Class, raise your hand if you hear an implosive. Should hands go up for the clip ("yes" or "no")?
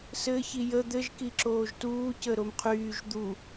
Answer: no